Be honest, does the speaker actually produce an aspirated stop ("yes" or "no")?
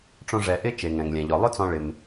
no